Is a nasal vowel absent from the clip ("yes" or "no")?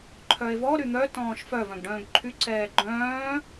no